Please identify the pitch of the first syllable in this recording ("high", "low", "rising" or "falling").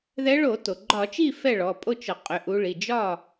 rising